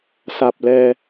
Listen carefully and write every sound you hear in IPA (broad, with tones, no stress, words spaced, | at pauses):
sa˨˩p̚lɛː˧